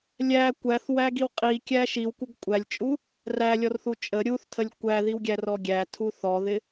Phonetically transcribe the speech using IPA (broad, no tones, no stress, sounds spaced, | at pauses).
lʲ æ kʷ æ θ w æ ɡ i w qʼ i kʲ æ ʃ i w kʷ ə ɡ kʷʼ æ lʲ t͡ʃʼ u | r æ lʲ ɔ r θ u t͡ʃʼ ə ɾʲ u θ tʰ ə lʲ kʷ æ ð i w ɡʲ æ r ɔ ɡʲ æ tʰ u θ ɔ ð ɪ